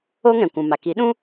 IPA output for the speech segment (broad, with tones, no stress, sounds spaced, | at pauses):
o˦ ŋ ɛ̃˨ kʷ ũ˨ m a˨ k i˨˦ ɗ ũ˦